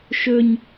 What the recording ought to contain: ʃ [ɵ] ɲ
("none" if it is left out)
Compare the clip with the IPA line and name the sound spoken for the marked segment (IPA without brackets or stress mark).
ɵ